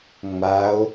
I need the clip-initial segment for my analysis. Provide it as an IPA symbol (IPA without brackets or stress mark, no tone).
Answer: ŋ͡m